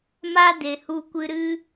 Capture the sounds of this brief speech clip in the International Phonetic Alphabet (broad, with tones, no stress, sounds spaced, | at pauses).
m a˦ d e˨ h u˧ kʷ ɨ˧ ɾ ɨ˦